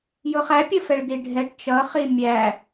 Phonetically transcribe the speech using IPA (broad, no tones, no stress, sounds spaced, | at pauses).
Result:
j ʊ χ æ pʲ ə f ɛ ɭ d i ɖʱ ɛ ʈ t͡ʃ ʌ χ i mʲ æ